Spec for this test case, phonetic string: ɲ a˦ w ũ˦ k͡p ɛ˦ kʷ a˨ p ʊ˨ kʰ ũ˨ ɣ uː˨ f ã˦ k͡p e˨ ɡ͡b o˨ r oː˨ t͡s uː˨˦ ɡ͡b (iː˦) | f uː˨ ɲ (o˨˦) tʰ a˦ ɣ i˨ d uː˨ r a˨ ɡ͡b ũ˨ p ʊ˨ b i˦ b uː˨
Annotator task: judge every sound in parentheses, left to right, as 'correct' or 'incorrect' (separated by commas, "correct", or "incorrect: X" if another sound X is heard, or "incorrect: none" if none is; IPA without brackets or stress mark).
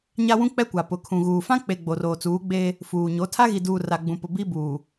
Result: incorrect: eː˦, correct